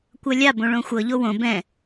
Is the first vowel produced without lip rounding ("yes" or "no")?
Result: yes